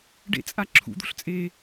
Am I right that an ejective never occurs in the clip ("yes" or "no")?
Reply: no